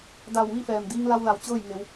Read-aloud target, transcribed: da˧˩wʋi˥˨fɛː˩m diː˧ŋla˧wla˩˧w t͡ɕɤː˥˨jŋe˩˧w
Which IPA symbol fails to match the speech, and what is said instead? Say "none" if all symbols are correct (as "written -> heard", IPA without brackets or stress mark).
none